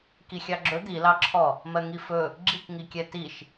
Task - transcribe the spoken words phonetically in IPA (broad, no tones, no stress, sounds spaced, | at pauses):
k i xʲ ɑ ɡ͡ǁ ɵ d̪ i l ɑ ǁʰ ɔ | m ɜ ŋ i f ɵ | ɡ͡ǁ i k ŋ i kʲ ɛ t i ʃ